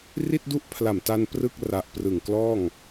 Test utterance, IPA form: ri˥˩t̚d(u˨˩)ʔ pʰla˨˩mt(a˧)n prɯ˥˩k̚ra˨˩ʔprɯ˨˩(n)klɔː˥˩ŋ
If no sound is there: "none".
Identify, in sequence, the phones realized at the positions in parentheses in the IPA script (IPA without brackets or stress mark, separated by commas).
u˥˩, a˧, ŋ